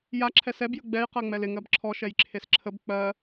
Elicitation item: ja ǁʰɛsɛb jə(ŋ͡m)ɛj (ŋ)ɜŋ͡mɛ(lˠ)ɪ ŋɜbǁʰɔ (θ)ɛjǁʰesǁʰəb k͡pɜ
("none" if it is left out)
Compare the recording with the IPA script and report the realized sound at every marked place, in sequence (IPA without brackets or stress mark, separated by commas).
ɡ͡b, q, l, ʃ